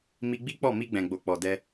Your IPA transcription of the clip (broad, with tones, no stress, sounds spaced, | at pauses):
m i˧ ɡ͡b i˦ k͡p ɔ˦˨ m i˧ ɡ͡b ɛ̃˨ ɡ͡b o˨ k͡p ɔ˨ d ɛ˧